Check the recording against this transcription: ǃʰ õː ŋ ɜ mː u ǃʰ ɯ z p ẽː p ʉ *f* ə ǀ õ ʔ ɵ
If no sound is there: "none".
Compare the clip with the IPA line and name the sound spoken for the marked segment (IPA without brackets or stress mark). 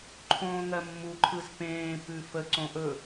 f